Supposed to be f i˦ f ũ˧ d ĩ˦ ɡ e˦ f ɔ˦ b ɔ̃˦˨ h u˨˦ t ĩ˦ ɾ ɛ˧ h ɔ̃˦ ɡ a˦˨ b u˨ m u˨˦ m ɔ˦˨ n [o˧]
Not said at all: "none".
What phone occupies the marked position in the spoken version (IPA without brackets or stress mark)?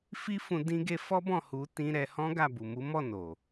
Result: o˨